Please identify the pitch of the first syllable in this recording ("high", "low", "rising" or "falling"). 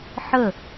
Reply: falling